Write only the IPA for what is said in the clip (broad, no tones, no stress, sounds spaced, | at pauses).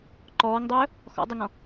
ǃ ɔː ŋ dˤ ɵː | x ɔ̰ dˤ y ŋ ɔ̃